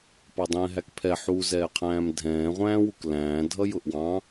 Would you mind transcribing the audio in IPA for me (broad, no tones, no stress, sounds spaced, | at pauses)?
p ɑ dˤ ɛ̃ː ɦ æ k pʰ ɛ ħ u z ɛː qʰ æ̃ː m dʱ ɛ̃ː ʁʷ æ̃ː w u k l æ̃ː dʱ ʌ j ʊ ʔ w ɑ̃